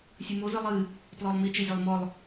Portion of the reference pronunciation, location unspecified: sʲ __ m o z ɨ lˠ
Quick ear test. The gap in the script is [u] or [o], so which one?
u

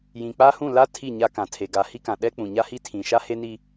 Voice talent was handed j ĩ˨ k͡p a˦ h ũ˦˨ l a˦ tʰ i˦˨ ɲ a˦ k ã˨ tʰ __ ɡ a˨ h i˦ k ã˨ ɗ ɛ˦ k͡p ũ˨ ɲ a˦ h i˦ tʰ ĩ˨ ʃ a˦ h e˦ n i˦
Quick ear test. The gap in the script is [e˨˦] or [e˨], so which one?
e˨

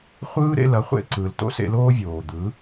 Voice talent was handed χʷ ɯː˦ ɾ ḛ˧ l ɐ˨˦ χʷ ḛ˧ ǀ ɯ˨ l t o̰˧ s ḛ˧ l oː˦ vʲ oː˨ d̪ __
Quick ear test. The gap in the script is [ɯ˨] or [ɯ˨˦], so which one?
ɯ˨˦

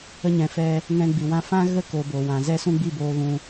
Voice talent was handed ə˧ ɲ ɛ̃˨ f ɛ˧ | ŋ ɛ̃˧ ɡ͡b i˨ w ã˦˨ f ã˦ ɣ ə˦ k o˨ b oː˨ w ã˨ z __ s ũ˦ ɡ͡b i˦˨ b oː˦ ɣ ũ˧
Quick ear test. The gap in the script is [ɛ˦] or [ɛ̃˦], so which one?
ɛ˦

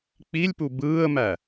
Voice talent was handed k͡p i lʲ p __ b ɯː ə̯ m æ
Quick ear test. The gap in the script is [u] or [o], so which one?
u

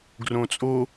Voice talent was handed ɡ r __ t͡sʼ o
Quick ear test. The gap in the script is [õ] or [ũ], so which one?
õ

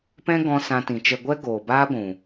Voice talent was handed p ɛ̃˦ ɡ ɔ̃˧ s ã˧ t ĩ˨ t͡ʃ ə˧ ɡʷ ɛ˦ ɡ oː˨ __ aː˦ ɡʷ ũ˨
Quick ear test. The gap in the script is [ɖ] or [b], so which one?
b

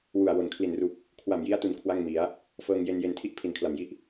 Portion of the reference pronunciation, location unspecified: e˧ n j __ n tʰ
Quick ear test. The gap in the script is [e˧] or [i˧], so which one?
e˧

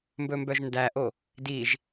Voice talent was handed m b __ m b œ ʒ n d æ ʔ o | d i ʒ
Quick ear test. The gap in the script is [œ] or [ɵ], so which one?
ɵ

